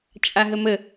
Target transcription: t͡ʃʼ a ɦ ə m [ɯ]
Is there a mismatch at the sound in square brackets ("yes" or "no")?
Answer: yes